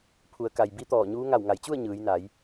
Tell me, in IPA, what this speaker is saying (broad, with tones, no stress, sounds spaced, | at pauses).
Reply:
pʰ u˩˧ ə̯ k a˩ j b i˧˥ t̪ ɔː˧˩ ɲ uː˧˥ ŋ a˧˩ w ŋ a˩˧ j t͡ɕ u˥˨ ə̯ ɲ ɯː˩˧ j n a˩˧ j